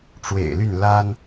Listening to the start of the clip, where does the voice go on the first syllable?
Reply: low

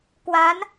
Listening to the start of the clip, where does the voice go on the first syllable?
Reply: rising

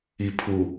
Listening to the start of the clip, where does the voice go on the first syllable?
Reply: low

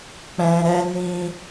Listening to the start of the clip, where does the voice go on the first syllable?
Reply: low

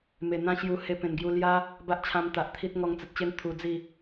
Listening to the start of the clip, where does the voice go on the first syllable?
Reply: low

